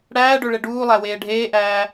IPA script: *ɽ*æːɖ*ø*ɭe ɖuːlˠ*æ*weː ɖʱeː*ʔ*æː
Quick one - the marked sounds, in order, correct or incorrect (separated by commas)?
correct, correct, correct, correct